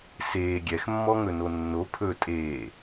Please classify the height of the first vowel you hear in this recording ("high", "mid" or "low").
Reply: mid